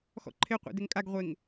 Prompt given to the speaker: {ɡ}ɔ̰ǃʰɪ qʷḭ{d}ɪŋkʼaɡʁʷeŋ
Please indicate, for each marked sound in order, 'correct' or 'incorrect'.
incorrect: x, correct

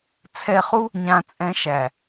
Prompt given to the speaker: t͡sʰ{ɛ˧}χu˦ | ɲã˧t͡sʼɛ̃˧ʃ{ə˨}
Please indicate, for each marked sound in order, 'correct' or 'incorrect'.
correct, incorrect: æ˨

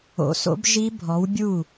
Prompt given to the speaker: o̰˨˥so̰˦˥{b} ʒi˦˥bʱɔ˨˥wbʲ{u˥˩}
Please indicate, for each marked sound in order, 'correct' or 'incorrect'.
correct, correct

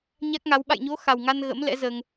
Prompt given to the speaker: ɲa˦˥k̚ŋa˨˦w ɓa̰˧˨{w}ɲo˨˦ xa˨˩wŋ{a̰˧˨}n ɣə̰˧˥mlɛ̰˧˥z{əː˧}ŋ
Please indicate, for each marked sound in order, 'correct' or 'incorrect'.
incorrect: j, incorrect: a˧, correct

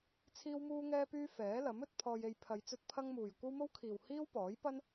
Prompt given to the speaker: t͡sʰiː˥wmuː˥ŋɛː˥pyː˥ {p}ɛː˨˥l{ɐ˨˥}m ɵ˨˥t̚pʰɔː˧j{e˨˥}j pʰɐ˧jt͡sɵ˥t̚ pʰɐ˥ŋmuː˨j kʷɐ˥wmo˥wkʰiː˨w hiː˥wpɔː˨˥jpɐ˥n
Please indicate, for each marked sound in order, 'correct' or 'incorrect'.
incorrect: f, correct, incorrect: e˧

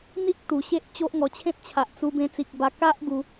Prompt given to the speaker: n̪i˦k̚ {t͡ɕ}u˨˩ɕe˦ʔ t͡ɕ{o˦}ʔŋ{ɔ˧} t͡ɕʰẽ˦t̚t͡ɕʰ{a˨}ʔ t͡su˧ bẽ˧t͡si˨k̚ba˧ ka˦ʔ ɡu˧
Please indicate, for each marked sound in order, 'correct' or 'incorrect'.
incorrect: t̪, correct, correct, correct

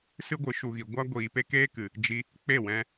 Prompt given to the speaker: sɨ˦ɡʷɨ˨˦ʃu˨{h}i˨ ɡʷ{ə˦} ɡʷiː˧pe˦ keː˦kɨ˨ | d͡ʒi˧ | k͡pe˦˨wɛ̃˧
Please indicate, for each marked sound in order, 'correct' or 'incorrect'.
incorrect: ɣ, incorrect: a˦

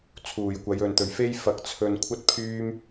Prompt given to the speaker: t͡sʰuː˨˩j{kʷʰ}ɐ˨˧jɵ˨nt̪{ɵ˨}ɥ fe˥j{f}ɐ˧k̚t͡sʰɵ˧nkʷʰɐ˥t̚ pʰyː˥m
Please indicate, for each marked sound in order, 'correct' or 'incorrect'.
incorrect: kʷ, correct, correct

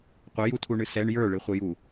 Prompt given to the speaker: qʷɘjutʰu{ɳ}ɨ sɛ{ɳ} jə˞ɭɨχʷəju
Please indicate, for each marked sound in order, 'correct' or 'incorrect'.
correct, correct

